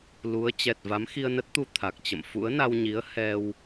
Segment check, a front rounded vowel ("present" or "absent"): absent